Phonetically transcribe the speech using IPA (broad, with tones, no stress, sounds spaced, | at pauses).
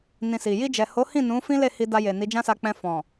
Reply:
n ĩ˧ s i˨ j i˧ d͡ʒ ɛ˨ h o˨˦ h ĩ˦˨ n ũ˨˦ f ĩ˦ l e˦˨ h i˧ d a˧ j e˨ n i˨˦ d͡ʒ ã˦ s a˧ k͡p ɛ̃˧ f ɔ̃˨